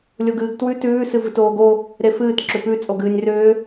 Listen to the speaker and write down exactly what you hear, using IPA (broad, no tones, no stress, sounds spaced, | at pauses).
lʲ o ɡ ɨː ɡ t w ʉ t ʉː s ɨ v ɨ t oː ɡ o | ɾ e f ɨː t ǁ ʏ p ʉ t͡sʼ o ɡ ɨː nʲ r ʏː